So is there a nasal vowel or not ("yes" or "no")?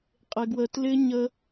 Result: no